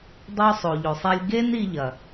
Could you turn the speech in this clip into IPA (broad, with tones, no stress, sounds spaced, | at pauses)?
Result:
dˤ o˦ sˤ o˨ ʎ o˨ sˤ e˦ lʲ ɡ e˦ n i˦ ʎ ɐ˨